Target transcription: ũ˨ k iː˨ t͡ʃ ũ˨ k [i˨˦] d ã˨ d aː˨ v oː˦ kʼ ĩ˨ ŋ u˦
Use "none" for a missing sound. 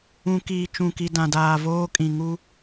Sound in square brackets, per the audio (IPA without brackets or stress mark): i˨